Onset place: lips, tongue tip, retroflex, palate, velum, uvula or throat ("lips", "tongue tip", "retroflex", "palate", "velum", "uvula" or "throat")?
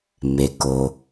lips